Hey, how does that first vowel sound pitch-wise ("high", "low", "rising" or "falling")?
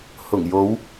low